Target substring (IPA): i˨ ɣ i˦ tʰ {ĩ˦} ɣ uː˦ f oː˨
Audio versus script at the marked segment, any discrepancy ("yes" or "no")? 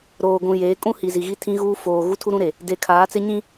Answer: no